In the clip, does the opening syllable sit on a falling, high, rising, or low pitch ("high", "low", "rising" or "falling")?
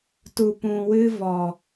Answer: low